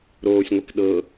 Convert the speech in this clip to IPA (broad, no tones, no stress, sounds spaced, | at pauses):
ɾ oː sʲ ŋʷ e k ɗ ɤ